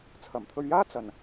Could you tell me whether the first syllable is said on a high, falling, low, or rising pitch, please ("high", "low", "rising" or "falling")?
low